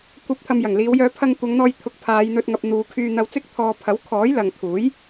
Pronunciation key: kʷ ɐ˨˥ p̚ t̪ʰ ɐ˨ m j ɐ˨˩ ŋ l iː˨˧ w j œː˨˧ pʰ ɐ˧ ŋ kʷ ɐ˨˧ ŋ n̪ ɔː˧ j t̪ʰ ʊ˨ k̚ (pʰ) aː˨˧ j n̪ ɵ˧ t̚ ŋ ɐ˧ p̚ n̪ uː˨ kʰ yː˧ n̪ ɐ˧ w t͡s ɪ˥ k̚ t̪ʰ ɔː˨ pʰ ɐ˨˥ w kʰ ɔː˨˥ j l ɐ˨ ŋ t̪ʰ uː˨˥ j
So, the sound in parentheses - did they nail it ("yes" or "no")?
yes